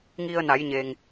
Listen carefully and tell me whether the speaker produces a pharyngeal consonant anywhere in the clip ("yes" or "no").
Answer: no